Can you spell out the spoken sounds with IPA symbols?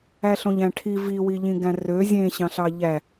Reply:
æɬõʎæ̃ʈʰi viwi ʎĩɡæ̃rø zʲẽɕɑ̃ɬɑ ʎæ

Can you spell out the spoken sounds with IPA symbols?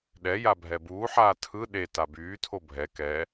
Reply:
ɗɛja bʱɛbuːħaː tʰɯ ɗe tabyːtʰo bʱɛ kɛ

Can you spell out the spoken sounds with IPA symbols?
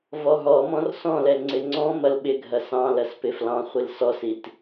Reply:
vɔɦɔmɔ̃r sɔ̃lɛ ŋ͡ǀɪŋ͡ǀɔ̃mɐl ɓɪɡʱɐ sɑ̃ lɐspɪflɑ̃χʷil sɔsit

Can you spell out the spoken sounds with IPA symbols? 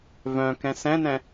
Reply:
vœ̃kɛ̃ sɛ̃nɛ̃

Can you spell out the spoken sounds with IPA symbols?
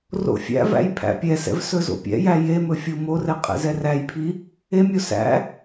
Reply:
ro̰fʲæ̰væ̰j pʰæ̰pʲɛsɛ̰v sɵzo̰pʲɛ̰jæ jemɵ fʲomorɛ qʼɛ̰zɛræjpʰi | emʲo sæ̰

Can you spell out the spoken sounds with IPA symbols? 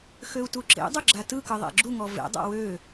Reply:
xøu̯tuǁḛdˤʊ ɡ͡ǁatɯkɯ ðˤḛɡ͡ǁuŋɔ vḛdˤa̰ wø

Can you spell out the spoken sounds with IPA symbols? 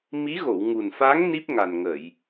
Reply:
mi˧˥ɣo˨˩˨w ŋu˨˩nfa˧˥ŋ ni˦˥p̚ŋa˨˩nŋə˨˩˨j

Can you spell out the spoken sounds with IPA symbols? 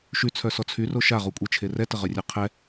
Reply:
ʃyt͡sʰœsɔ t͡sʰyro ʃaʁukʷʼet͡ʃʰe rɛtəʁœrʲœ qʰɛ

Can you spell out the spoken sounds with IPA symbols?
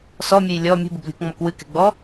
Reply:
sɔmʲɨj lʲɔ mʲṳbɨblʲṳkŋ͡mɔk wɨkɛ̤ɡ͡bɔ

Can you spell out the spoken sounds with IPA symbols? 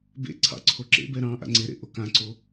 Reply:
bḛ ǀʰɑ̰ǀʰoǁḛbɛ ɾɑ̃ ʔa̰ŋ͡ǀeɾḛ ʔokãǀo

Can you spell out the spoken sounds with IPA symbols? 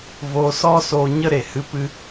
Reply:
voː˧sɔ˦soː˧ ɲə˦ɾe˨ hɨ˧pɨ˧

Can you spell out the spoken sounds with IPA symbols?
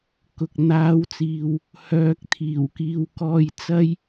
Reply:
kʊ˨k̚n̪aː˨˥wt͡siː˨w | hœː˨k̚t̪ʰiː˨˩wkiː˨wkɔː˨˧j t͡sɐ˥j

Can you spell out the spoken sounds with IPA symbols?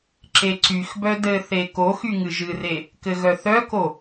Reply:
ǁeǀyxbœ dɘθe koxy ŋɨʒɨre | kɘɣœθœko

